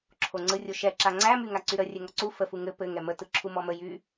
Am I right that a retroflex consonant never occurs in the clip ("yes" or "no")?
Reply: yes